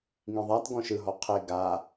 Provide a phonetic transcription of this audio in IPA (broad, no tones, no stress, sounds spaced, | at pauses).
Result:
ŋ ĩ ðˤ a t ɡ ɔ̃ ʃ ɯ ɦ ɔ qʰ e ɡ a